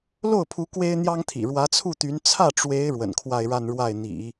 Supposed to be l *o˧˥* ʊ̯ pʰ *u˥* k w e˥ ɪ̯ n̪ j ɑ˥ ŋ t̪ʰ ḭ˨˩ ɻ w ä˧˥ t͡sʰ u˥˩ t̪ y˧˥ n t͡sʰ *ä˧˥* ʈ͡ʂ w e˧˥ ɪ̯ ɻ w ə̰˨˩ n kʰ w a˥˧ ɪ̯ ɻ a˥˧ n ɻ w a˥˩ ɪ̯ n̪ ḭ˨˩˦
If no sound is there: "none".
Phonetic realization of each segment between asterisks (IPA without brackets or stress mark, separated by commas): o˥˩, u˧˥, ä˥˩